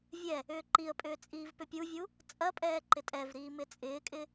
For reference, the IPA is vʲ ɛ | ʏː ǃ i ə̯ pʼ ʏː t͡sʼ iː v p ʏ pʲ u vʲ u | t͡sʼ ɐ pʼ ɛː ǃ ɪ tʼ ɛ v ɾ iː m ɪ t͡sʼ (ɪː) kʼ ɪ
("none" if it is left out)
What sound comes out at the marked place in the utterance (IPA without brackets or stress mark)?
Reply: ɪː